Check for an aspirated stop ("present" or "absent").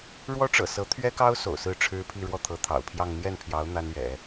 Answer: present